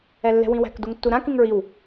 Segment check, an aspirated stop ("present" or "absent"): absent